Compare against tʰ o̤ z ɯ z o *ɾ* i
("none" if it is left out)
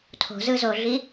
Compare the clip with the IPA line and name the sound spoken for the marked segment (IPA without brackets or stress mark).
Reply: ɮ